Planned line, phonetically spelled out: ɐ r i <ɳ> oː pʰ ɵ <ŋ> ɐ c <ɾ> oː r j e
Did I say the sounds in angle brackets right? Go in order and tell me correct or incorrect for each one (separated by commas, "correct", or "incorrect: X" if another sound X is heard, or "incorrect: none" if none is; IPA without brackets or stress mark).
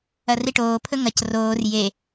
incorrect: ʈ, correct, incorrect: r